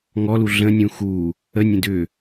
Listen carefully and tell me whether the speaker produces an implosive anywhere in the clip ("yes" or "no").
no